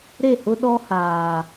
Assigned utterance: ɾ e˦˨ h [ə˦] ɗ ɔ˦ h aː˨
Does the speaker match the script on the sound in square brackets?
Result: no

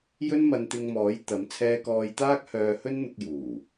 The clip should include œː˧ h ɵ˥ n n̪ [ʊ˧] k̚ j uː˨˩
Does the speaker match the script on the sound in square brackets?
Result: yes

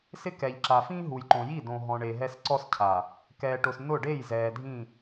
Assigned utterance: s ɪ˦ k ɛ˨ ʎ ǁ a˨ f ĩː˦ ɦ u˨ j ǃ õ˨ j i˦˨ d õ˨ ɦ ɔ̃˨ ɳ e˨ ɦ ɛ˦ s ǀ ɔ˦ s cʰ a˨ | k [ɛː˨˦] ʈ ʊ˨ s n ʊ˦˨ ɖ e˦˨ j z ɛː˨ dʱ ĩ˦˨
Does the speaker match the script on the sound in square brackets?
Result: no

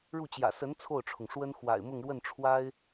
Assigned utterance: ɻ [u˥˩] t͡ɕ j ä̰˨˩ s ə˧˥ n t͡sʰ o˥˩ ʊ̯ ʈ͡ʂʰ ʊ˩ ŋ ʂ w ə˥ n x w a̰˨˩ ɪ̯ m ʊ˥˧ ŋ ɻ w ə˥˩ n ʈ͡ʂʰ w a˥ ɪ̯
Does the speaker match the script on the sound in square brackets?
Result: yes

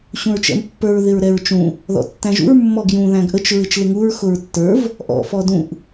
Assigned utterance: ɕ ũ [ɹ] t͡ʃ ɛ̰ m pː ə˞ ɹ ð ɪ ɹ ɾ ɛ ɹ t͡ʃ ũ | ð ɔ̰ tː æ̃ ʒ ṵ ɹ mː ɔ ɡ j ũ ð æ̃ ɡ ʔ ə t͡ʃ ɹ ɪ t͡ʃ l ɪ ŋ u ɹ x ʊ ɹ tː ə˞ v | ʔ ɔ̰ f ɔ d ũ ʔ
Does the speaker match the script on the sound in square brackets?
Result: yes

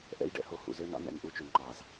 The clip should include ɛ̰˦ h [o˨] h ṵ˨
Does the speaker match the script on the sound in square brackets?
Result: yes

